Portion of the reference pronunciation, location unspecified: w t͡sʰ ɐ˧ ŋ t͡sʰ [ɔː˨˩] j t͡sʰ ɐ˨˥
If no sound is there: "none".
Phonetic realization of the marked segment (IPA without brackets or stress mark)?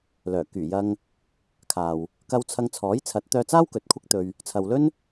ɔː˨˥